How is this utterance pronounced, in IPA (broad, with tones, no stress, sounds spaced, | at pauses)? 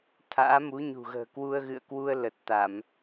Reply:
t̪ʰ a̰ː˧˥ m u˨˦ ɲ ṳ˨˩ ɣ ə̤ː˨˩ k w u˧ ə̯ ɣ ɨ̰˧˨ ə̯ k w u˧ ə̯ l ə˨˩ t̚ t̪ a˧˩˨ m